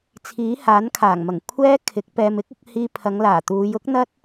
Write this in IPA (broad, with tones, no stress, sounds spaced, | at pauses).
t͡sʰ iː˨˥ h aː˨˥ n kʰ aː˨˩ ŋ m ɐ˨˩ ŋ kʷʰ ɛː˥ kʰ ɪ˨˥ k̚ p ɛː˧ m ɪ˥ k̚ ʊ˨˥ k̚ h iː˧ pʰ ɐ˨˧ ŋ l aː˨˩ t̪ uː˨˧ j ʊ˥ k̚ n̪ ɐ˥ t̚